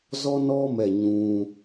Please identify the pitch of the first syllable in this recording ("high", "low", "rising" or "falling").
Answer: high